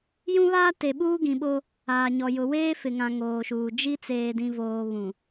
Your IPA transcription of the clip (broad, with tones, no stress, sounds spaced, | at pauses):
j ũ˦ β aː˦ t e˨ ɓ uː˦ ɡ ĩ˨ ɓ o˦ | aː˨ ɲ ɔ˨ j ʊ˨ w eː˦ f ɪ˨ ŋ ã˨ ŋ oː˨ ʃ uː˨ d͡ʒ i˦ t͡s eː˨ d ĩ˨ v oː˨ β ũ˨